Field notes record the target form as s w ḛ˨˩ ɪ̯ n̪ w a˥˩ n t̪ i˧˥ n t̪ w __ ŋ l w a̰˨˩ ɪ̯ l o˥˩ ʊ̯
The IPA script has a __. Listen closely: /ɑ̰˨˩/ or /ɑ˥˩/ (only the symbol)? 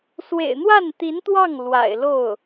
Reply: ɑ˥˩